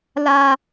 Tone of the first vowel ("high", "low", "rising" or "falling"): high